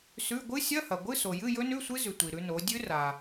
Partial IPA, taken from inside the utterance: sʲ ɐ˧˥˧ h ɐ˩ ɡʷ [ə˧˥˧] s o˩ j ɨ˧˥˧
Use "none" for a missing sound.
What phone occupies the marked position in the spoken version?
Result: ɨ˧˥˧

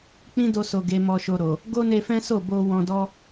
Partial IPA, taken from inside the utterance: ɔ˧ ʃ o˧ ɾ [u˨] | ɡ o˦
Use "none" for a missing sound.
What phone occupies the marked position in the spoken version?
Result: o˨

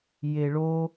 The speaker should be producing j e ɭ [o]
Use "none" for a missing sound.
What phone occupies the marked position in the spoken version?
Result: o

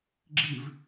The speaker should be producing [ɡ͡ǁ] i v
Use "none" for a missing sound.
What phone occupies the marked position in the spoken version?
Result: ɡ͡ǁ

